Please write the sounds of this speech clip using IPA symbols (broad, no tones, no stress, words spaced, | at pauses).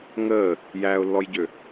ŋəː | jæːʊ̯lːɔjɟø